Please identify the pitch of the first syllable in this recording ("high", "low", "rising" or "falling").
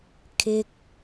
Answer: high